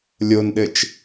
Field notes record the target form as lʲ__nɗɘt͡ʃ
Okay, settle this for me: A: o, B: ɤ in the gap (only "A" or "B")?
A